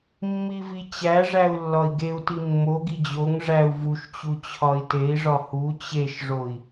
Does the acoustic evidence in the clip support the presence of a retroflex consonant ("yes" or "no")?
yes